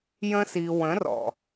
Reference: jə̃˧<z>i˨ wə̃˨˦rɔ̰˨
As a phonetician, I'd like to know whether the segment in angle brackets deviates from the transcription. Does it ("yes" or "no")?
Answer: yes